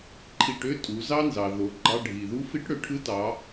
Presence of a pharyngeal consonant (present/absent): absent